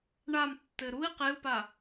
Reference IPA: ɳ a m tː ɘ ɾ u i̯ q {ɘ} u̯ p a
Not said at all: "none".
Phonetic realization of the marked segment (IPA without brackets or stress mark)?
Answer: e